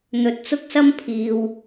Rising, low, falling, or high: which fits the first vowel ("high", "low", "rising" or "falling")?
low